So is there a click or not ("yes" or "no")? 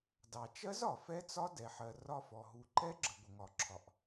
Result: yes